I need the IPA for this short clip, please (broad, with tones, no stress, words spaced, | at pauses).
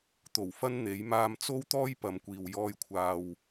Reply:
t̪o˨˩w fɐ˥nn̪e˨˥j maː˧mt͡so˥wt̪ɔː˥j pɐ˨˧mkʷiː˨w jɔː˧jkʷʰaː˨w